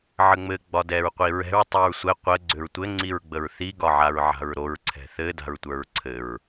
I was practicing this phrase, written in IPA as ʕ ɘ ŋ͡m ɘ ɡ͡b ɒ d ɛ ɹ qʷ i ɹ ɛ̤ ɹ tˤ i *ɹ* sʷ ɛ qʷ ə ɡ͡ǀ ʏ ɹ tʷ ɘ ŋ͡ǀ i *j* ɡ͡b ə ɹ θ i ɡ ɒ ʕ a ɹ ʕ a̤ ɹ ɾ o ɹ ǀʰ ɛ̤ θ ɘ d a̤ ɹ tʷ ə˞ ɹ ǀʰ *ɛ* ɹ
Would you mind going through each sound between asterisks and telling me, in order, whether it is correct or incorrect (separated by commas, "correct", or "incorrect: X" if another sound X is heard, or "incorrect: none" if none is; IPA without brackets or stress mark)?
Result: correct, incorrect: ɹ, incorrect: ɘ